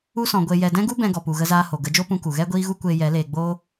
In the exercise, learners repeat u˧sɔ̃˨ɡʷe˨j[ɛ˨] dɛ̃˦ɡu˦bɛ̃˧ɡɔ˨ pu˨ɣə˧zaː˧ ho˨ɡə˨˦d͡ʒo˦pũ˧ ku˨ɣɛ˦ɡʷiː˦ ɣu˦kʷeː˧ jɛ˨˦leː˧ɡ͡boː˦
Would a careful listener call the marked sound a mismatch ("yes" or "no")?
no